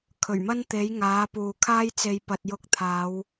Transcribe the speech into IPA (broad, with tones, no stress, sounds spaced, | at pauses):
kʰ ɵ˨˩ ɥ m ɐ˥ n t̪ e˨˥ j ŋ aː˨˥ p uː˨ kʰ aː˥ j t͡s e˧ j p ɐ˨ t̚ j ʊ˧ k̚ t̪ʰ aː˨˧ w